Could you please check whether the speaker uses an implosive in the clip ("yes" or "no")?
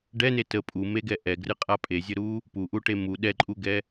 yes